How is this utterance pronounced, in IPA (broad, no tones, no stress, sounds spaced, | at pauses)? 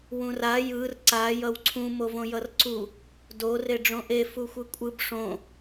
w ũ r a j ɯ r ǀ a j ʌ w ǀʰ ũ m o v õ j ʌ r ǀ u | d o r e ɖ͡ʐ õ ʔ e f u xʷ ɯ kʷʼ ɯ b ʂ õ